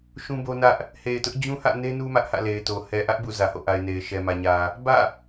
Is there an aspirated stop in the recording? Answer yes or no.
no